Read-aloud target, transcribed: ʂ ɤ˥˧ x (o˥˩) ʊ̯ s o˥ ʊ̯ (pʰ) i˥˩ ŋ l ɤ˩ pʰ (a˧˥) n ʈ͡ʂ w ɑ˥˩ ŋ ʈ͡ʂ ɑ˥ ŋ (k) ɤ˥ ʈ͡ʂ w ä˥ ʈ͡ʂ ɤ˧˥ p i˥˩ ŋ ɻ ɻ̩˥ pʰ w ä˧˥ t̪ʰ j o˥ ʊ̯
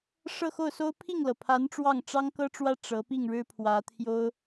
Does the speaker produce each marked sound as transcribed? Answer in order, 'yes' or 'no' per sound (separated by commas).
yes, yes, yes, yes